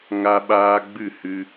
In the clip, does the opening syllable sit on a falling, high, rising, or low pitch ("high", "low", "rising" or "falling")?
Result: high